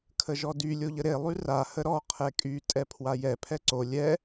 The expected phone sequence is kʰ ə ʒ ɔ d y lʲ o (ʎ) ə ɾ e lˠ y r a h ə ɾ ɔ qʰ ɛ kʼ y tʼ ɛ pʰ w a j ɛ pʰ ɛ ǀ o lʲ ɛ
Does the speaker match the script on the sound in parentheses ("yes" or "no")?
yes